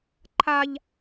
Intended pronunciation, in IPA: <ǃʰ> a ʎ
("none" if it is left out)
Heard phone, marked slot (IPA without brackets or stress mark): ǃʰ